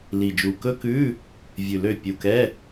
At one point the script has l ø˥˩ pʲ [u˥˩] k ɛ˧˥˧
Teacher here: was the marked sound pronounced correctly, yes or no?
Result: no